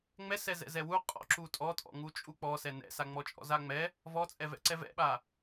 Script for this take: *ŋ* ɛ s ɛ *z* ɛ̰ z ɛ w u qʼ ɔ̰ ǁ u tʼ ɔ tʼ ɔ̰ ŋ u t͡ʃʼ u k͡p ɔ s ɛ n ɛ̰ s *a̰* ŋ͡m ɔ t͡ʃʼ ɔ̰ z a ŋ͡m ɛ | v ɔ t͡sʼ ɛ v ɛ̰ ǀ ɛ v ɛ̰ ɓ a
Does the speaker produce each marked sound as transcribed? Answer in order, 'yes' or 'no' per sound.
no, yes, no

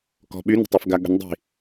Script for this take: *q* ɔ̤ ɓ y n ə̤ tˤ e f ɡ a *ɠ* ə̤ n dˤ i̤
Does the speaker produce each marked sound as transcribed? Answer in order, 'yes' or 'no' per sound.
no, yes

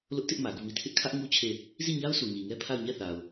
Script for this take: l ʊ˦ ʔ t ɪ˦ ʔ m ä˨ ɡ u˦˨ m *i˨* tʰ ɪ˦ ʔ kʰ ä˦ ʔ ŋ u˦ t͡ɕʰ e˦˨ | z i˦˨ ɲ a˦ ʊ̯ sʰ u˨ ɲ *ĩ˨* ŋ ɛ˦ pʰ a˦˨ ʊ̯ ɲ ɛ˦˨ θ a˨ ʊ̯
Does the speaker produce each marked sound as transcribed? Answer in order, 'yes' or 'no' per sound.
no, no

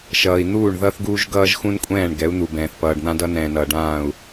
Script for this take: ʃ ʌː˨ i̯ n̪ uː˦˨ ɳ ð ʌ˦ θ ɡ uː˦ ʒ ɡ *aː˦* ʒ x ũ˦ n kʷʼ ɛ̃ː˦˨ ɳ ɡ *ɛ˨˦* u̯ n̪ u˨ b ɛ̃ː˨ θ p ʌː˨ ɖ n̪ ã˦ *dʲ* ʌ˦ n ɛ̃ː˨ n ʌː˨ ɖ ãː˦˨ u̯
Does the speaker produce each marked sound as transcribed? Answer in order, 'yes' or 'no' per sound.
no, yes, no

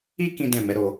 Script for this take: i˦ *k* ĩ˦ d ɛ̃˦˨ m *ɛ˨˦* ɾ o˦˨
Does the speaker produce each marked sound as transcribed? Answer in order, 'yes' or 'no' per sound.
yes, yes

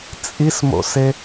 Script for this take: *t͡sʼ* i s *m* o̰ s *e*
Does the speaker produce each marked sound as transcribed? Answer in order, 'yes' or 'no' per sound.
yes, yes, yes

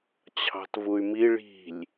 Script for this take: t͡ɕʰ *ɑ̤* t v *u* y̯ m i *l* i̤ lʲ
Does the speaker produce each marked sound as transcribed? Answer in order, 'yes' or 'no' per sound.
yes, yes, no

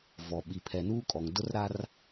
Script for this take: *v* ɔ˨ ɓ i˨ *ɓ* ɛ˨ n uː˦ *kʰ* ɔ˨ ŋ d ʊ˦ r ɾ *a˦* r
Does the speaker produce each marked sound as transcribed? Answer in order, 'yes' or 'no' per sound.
yes, no, no, yes

